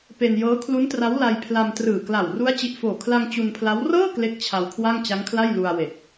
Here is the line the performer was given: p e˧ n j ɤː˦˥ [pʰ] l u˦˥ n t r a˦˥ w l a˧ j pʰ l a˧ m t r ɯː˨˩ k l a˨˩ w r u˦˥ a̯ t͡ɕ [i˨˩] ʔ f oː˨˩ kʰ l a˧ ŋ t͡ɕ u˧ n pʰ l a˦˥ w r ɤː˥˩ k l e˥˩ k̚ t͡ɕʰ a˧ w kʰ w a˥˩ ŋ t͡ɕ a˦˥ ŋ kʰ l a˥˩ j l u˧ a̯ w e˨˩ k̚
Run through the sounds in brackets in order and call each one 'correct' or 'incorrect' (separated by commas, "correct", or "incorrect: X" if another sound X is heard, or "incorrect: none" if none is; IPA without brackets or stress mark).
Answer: incorrect: kʰ, correct